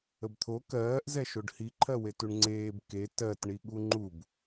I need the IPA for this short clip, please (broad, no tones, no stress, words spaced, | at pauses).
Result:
əbt̪ʰo kɜːʔ zɛʃoɖhiǃʰɜ wetuɳŋ͡ǀeːb ke tɜtɳiɠu ŋ͡ǃub